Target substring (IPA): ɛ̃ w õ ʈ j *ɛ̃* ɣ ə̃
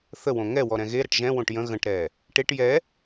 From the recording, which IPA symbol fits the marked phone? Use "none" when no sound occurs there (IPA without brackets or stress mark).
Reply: ə̃